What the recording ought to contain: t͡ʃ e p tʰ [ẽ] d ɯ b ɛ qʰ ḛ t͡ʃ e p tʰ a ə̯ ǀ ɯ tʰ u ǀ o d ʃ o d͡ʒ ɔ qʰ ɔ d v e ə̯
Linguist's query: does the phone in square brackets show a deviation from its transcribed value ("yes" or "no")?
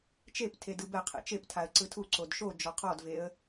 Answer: yes